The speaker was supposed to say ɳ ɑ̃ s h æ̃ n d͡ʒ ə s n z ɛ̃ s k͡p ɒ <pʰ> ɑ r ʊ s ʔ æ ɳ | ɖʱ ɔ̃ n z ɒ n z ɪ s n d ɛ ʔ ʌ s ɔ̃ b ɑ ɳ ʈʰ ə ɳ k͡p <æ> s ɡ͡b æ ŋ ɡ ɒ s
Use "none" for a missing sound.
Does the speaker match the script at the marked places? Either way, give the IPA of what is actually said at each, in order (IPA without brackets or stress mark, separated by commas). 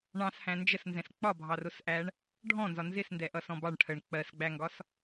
bʱ, ɜ